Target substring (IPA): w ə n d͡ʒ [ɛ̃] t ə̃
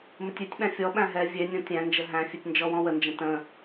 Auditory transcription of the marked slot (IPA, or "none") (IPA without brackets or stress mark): ə̃